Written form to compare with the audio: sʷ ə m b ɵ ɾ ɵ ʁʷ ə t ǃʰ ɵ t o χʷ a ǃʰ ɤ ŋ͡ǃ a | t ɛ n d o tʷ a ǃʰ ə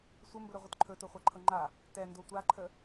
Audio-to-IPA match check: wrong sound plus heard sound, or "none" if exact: none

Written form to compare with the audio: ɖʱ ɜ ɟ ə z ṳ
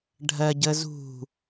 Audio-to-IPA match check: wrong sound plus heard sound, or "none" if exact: none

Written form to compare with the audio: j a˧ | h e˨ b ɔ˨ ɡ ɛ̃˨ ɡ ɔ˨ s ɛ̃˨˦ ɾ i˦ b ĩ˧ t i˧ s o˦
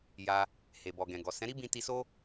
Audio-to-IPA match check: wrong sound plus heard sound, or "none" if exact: none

